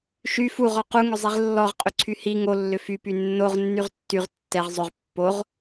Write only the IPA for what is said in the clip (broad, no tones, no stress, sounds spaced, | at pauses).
ʃ y f u ʁ ɔ q u ŋ ʏ zˤ i ʁ lː ɔ ʁ qʼ ʏ ǀʰ y h i ŋ o lː ʏ f y p y nː o ʁ nː y ʁ tː y ʁ tː ɛ ʁ zˤ ʏ ʁ pː o ʁ